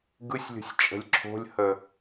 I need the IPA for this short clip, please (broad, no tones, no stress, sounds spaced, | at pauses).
ɡ ɯ sʲ lʲ o̤ sʲ t͡ʃʼ ə̤ lʲ ǁʰ o̤ lʲ h ə